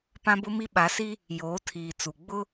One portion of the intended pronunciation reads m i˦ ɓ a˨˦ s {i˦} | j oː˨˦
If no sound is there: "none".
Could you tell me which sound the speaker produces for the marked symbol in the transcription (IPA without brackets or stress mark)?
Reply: i˦